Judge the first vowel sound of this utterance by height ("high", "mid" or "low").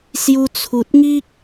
high